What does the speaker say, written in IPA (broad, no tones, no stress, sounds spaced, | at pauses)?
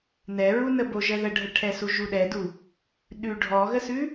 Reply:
n ɛ ɹ u n ə b o ʒ ə ð ə ɖʱ ə ʈʰ ɛ s u ʒ u ɗ ɛ d u | ɗ ʉ ɖʱ ɔ ɣ ə s ʉ